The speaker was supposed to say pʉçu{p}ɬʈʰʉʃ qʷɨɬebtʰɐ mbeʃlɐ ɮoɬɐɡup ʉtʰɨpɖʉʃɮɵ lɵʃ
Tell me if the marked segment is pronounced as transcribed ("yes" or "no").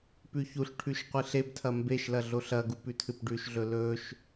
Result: no